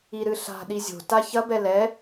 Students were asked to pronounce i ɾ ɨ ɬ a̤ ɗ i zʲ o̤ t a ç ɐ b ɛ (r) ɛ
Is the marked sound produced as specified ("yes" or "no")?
no